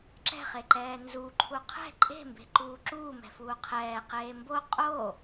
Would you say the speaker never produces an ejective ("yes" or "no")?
no